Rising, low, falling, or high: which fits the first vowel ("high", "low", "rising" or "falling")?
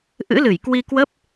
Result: rising